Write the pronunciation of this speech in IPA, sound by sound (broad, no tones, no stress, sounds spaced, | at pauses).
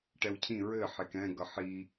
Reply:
ʈ ɛ w cʰ ĩ ɹ ɘ ħ e k ɛ̃ ɡ ʌ ħ i